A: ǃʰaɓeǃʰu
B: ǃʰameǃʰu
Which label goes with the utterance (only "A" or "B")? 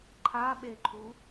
A